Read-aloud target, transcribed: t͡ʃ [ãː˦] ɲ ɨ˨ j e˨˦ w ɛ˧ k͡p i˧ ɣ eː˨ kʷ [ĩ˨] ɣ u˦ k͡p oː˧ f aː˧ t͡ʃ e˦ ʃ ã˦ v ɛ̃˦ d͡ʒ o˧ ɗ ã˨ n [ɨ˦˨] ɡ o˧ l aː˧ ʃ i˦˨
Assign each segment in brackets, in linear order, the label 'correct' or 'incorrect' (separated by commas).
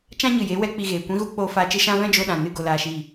incorrect, incorrect, correct